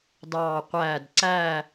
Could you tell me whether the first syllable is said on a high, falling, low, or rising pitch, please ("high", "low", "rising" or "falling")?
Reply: falling